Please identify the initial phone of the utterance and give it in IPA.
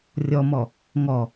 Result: rʲ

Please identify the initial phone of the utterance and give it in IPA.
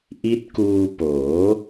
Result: ʔ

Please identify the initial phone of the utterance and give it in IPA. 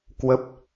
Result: k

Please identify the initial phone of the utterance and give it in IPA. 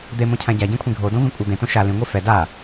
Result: d̪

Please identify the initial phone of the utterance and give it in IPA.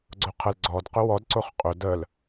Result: ɡ͡ǀ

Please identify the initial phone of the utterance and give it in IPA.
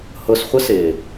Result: h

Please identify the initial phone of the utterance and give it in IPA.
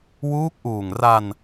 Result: w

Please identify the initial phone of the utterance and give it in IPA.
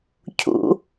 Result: cʰ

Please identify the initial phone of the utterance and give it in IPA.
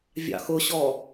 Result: vʲ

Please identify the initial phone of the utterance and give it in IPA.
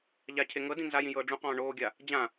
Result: ʎ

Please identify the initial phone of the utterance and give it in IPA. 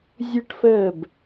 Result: zʲ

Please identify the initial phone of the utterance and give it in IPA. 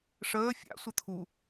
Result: ʂ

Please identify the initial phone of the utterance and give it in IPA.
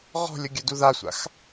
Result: ʁ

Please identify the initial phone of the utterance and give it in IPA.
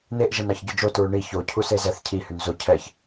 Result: n̪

